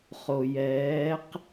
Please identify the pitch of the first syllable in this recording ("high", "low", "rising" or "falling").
low